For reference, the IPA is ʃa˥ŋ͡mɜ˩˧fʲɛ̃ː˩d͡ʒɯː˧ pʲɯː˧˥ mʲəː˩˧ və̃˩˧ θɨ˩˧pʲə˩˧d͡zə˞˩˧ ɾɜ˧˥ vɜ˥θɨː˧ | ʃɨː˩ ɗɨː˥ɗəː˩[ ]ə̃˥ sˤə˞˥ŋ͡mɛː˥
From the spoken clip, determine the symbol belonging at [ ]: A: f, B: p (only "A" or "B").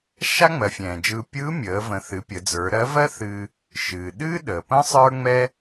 B